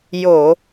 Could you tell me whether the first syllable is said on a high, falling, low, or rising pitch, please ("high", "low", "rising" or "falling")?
low